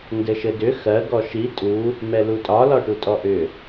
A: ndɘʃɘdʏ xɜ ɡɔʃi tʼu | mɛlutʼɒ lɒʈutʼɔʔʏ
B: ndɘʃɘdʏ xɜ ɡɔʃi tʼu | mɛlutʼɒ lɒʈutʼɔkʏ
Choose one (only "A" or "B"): A